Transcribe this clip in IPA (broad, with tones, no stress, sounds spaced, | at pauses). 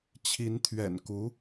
t͡ɕʰ i˧˥ n t̪ʰ ɥ ɛ̰˨˩ n k u˧˥